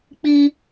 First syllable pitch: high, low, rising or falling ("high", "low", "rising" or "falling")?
high